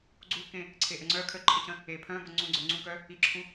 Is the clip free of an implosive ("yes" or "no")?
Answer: yes